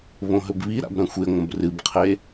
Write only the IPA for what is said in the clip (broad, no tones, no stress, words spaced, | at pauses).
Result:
βõɦɵbβiɾa̰b ɾɐ̃xʷeŋʷɐ̃b rɨbqʰe